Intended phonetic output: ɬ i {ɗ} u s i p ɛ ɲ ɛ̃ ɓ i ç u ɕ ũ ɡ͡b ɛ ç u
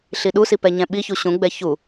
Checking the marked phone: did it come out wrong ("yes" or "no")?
no